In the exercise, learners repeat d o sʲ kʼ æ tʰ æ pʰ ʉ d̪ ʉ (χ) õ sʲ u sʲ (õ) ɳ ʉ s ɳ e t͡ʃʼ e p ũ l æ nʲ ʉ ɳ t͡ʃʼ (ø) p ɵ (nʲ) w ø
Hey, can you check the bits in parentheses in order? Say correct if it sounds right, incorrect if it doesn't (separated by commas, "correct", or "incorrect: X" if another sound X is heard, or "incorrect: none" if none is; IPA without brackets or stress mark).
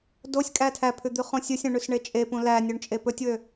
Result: correct, incorrect: ũ, incorrect: e, incorrect: tʲ